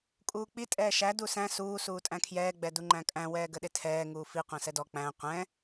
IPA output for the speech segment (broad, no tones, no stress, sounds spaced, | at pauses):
kʼ uː k͡p i tʼ ɛː ʃ æ d u s æ̃ s uː s uː tʼ æ̃ kʰ j ɛː ɡ͡b ɛ d u ŋ͡ǃ æ̃ kʼ æ̃ w ɛː ɡ ə ɗ ɪ tʰ ɛː ŋ uː f i qʷ æ̃ s ɛ d ɔ k͡p æ̃ qʷ ɛ̃